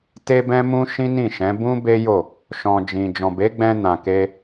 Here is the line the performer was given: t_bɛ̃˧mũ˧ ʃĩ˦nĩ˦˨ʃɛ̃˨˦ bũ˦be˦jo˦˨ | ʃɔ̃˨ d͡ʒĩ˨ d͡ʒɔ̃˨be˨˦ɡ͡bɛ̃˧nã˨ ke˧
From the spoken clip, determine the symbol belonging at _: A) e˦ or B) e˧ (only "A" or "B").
B